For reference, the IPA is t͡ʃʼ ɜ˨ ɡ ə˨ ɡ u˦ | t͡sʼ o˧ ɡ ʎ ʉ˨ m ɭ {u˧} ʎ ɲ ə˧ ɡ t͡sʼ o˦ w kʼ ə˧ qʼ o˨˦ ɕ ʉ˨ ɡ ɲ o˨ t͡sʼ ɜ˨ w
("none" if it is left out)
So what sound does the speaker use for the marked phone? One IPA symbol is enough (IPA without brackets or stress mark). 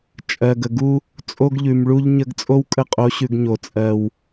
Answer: u˧